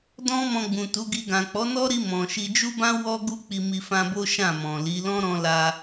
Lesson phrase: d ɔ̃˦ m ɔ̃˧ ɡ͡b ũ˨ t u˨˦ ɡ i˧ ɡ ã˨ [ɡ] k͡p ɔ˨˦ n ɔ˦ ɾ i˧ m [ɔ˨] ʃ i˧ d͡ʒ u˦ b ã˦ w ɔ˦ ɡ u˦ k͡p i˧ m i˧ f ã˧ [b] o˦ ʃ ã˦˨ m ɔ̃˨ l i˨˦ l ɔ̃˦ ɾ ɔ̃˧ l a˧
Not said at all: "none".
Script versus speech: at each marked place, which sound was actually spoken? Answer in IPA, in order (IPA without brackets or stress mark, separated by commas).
none, ɔ̃˨, b